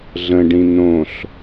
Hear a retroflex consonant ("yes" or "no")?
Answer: yes